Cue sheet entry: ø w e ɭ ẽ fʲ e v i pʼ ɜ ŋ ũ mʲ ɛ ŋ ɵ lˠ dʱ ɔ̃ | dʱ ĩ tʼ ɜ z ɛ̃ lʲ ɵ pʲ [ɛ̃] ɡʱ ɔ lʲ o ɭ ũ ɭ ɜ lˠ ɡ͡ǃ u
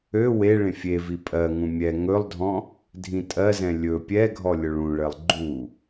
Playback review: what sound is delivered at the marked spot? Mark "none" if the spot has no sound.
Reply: ɛ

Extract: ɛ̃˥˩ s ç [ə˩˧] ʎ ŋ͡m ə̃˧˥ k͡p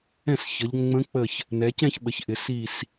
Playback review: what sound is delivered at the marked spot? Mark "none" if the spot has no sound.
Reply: ə˩˧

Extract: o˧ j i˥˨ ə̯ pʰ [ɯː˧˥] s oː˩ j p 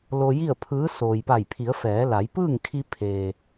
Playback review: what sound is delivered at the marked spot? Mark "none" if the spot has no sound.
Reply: ɯː˧˥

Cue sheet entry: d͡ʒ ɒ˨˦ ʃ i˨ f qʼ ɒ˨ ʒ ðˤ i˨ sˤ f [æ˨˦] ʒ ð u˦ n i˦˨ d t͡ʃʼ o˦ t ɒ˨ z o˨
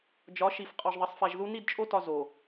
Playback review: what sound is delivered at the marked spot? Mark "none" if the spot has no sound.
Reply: æ˨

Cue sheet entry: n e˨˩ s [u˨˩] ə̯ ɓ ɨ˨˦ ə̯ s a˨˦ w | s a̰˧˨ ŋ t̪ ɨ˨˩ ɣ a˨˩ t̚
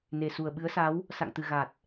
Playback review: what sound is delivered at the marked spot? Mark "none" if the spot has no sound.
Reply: u˨˩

